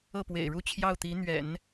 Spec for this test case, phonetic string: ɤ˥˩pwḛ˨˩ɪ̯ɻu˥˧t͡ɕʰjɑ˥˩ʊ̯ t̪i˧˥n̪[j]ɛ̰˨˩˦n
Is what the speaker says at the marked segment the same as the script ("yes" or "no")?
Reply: no